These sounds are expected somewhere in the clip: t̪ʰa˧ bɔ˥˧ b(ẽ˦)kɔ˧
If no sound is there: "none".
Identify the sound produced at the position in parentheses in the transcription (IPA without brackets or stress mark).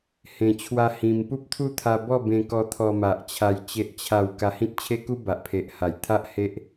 ẽ˧